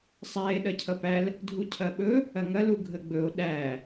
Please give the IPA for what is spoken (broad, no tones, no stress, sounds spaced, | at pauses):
sˤ æ e̯ ɗ ɐ cʰ ʌ p æ l | dʱ u cʰ ɐ ɓ ɵ | ɐ ŋ ɐ l u ɡʱ ə ɡ͡b ɵ o̯ ɗ æ